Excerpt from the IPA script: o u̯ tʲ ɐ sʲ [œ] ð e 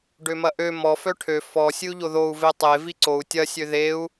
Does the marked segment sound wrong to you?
yes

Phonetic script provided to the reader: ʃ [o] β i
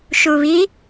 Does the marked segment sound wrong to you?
yes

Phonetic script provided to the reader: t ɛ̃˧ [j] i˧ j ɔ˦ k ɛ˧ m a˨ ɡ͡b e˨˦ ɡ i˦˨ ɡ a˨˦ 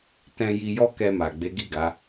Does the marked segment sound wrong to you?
no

